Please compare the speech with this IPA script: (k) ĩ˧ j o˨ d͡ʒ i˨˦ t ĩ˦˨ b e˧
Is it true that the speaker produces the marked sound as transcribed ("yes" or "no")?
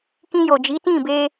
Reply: yes